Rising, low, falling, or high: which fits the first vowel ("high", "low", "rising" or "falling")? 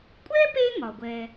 high